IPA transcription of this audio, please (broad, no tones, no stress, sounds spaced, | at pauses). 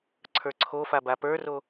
ǀʰ ə˞ ǀʰ o f a b a p ə˞ r o